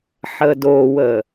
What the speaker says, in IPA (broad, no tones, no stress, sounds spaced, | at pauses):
ħ əː d oː w əː